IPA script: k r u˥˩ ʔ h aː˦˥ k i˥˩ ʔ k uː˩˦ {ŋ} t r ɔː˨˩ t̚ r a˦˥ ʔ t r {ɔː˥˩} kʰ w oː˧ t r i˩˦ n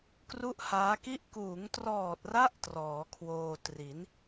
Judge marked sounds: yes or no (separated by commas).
yes, no